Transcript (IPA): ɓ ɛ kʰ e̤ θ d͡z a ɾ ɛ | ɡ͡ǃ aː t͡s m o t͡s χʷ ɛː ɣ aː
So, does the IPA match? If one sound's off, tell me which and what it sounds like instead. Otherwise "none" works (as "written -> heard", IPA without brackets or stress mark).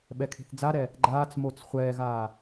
none